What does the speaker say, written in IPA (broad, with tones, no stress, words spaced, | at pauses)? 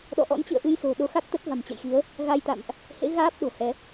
ɗɔ̰˧˨ʔɔ̰˧˥nt͡ɕɨ̰˧˨ə̯ ʔɨ˧jso̤˨˩ ɗo˨˦xa˦˥k̚t̪ə˦˥t̚ va̤˨˩mt͡ɕə̰˧˨jxi˨˦ə̯ | ɣa˧jt̪a̰˧˨mʔ | hḛ˧˥ɣaː˦˥p̚ ɗo̤˨˩hɛ˨˦